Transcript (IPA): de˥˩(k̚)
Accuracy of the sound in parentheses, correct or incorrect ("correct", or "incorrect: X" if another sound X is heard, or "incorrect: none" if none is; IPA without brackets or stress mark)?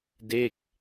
correct